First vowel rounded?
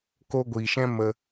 yes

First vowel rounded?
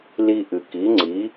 no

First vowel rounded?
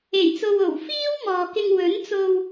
no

